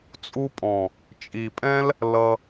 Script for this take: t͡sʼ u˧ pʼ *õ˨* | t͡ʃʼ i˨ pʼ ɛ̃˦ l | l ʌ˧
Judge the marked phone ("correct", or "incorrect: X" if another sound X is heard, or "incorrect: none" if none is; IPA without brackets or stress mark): incorrect: ɔ̃˨